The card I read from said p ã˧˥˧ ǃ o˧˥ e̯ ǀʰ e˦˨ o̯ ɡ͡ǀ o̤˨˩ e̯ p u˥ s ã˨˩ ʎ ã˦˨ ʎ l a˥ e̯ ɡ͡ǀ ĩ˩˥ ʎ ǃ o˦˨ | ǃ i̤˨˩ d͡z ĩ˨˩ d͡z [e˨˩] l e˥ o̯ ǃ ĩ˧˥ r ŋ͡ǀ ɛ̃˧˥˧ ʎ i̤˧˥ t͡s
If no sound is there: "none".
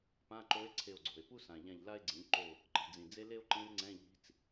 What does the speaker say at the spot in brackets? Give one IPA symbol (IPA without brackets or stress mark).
e˥